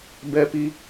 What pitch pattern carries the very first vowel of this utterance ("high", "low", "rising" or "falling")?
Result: high